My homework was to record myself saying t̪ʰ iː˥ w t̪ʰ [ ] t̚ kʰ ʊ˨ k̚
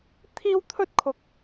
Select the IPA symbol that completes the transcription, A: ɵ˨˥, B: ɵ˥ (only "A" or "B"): B